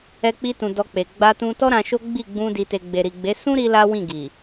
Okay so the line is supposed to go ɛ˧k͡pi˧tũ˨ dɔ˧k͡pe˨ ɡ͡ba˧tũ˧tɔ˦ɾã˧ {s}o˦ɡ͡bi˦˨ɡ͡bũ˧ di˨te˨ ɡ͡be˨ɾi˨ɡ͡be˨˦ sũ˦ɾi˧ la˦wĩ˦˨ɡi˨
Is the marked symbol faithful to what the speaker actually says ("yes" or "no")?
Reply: no